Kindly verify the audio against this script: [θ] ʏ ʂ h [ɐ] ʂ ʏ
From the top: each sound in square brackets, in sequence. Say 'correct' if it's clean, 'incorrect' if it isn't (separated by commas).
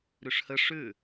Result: incorrect, incorrect